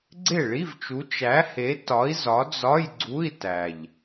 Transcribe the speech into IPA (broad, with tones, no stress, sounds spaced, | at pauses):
ɡ͡ǀ e˥˩ ɭ i˧˥˧ v t͡ʃ u˨˥ t͡ʃ æ˨˥ h e˨˥ t ɒ˨˥ i̯ z ɒ˨˥ d͡z ɒ˧˥˧ j ɡ͡ǀ u˧˥˧ i̯ t æ˨˩ ʎ